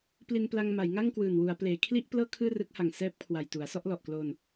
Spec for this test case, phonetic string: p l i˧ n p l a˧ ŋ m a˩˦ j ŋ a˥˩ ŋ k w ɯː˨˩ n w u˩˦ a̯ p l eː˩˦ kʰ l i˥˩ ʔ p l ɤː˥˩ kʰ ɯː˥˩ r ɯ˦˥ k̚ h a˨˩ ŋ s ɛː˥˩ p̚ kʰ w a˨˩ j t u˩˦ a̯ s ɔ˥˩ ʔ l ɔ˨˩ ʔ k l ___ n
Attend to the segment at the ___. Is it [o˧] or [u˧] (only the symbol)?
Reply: o˧